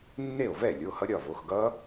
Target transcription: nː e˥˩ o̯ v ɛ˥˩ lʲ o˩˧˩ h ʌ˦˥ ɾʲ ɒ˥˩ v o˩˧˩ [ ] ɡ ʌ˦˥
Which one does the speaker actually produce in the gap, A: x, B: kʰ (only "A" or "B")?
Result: A